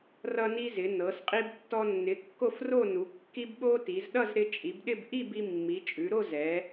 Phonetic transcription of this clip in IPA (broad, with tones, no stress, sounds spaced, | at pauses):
r ʌ˧ n i˧ z ɪ˩˧ n ɤ˩˧ s qʼ i˧ b tː ɔ˧ nː ɪ˩˧ kː o˥˨ f r o˥˨ n u˩˧ kː i˧ b ɓ o˧ t i˩˧ z ɗ ʌ˥˨ z ɾ ɪ˧ t͡ʃʼ i˩˧ b ɗ ɪ˥˨ b ʔ i˥˨ b i˧ mː i˩˧ t͡ʃʼ ʉ˩˧ ɾ o˥˨ z ɛ˩˧